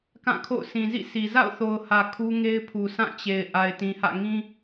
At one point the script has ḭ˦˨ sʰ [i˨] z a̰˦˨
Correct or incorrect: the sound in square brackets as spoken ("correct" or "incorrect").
correct